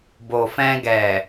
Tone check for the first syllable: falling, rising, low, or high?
low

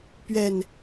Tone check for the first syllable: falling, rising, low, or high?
low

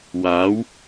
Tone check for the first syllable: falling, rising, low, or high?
rising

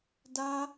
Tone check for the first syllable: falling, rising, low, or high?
high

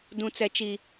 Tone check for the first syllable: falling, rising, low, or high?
high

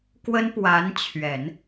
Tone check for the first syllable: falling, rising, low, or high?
high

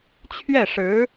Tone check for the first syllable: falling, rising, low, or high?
falling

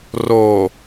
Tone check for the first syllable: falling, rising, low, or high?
low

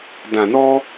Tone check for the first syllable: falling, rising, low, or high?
low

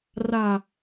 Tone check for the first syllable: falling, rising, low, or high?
low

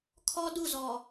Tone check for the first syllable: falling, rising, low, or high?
high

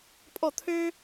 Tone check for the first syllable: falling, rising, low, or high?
falling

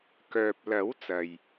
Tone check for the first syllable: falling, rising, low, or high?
low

